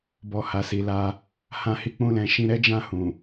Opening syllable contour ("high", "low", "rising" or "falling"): low